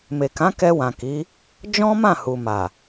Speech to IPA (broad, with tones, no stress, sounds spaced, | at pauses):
m e˨ k ã˨˦ k ɛ˧ w ã˨ k i˨˦ | d͡ʒ ɔ̃˦ m ã˦˨ h u˨ m a˨